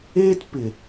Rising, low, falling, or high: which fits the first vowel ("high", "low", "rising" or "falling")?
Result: high